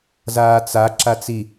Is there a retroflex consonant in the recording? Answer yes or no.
no